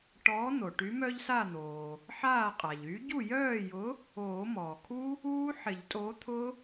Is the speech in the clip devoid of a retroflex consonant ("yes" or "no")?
no